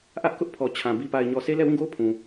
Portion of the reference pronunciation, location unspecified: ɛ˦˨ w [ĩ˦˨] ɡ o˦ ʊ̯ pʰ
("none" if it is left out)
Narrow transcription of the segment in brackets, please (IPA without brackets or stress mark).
ĩ˦˨